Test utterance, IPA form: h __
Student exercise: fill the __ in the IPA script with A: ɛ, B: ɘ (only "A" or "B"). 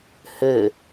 B